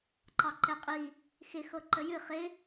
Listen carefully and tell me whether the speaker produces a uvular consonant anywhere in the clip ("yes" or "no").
yes